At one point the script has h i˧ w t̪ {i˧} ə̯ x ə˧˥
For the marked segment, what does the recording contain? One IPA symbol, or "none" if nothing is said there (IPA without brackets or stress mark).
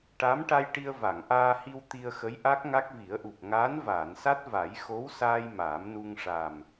i˧